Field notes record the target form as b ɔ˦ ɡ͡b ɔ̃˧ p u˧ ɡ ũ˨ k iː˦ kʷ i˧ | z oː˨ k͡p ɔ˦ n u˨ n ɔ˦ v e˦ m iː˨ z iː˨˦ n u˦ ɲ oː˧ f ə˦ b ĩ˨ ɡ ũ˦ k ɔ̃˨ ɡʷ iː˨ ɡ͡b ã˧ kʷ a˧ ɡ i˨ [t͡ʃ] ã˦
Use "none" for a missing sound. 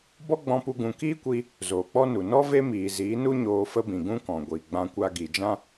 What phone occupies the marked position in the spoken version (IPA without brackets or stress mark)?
d͡ʒ